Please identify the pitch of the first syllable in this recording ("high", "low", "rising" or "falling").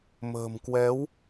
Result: low